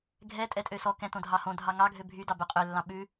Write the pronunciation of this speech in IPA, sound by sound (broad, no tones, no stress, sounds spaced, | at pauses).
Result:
ɡʱ ɛ tʼ ɛ tʼ ø s ɔ k ɛ̃ t õ dʱ ɑ h õ dʱ ɑ ŋ ɑ ɡʱ ø bʱ y d ɑ b ɵ qʼ ø lː ɑ̃ ɓ ʉ